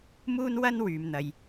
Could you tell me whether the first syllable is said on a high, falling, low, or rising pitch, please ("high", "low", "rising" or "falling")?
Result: high